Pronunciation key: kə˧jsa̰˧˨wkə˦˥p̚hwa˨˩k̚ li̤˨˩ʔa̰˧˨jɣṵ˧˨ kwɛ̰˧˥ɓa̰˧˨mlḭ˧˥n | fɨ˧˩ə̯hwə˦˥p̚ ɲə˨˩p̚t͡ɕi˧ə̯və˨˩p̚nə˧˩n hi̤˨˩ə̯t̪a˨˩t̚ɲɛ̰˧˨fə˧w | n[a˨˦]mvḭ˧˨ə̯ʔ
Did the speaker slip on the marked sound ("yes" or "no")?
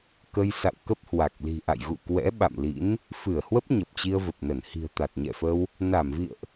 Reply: yes